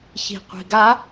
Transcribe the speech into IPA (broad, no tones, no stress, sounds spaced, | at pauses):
ç i̤ qʷ i̤ ɡ a